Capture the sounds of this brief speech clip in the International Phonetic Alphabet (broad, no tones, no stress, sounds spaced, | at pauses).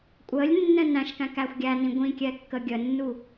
kʷʼ əː lʲ nː ɛ̃ n æ̃ ʃ k æ̃ k æ xʷ ɡʲ æ n ĩ ɡʷ ĩ kʲ ɛ kː ə ɡʲ ə nː u